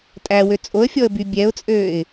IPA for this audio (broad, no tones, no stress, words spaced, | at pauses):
tʼæwø t͡sʼoə̯fʲɔə̯by bʲɛʊ̯t͡sʼøːɪ̯